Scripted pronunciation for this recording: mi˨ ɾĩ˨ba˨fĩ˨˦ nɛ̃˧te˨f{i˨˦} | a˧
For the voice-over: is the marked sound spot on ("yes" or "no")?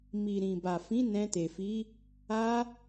yes